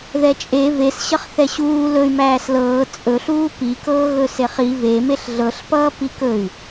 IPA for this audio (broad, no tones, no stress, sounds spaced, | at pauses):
ð ɛ t͡ʃʼ e v e s ɕ ʌ χ θ ɛ ɕ uː l ɵ y̯ m æː s l ɤː t͡sʼ ɵ ɬ uː p i k ɤː ɣ ɵ s e χ i v e m e ɬ ɮ ɤ ɬ p ʌː p i k ɵ y̯